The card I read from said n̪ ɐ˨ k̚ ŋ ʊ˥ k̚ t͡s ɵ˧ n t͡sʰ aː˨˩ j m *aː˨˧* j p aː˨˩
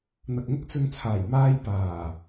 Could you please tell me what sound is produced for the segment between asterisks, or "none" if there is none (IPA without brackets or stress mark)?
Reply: aː˧